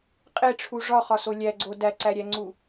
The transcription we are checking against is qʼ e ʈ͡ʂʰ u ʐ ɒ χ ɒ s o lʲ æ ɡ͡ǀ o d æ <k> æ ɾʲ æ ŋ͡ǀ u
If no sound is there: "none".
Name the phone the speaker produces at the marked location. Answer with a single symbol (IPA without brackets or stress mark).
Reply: ǀ